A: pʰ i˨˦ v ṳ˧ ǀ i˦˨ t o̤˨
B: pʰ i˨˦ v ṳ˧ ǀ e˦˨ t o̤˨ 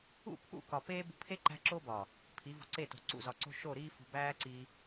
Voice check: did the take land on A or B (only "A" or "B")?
B